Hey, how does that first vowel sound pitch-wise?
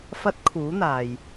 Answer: rising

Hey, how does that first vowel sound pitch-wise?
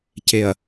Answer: low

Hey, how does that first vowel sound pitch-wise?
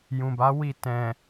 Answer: low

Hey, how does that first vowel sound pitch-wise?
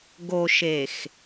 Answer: low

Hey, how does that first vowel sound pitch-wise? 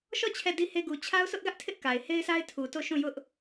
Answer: falling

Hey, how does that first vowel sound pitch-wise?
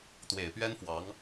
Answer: low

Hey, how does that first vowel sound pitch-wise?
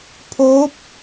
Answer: rising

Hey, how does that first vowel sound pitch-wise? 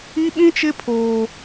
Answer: high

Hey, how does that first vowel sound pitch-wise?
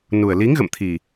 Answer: low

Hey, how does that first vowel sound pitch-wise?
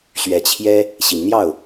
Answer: rising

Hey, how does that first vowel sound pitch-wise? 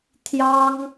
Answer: high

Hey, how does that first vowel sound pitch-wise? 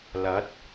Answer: rising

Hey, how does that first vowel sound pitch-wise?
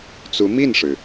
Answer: rising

